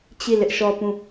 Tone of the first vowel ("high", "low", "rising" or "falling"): falling